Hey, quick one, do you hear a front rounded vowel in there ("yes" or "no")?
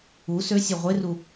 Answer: yes